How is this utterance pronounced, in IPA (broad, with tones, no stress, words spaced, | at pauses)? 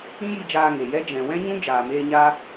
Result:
ĩ˦ji˧d͡ʒaː˧ ŋe˨jɛ˦ d͡ʒɛ̃˨wɛ̃˦ɲũ˦ d͡ʒaː˨meː˧ ɲa˦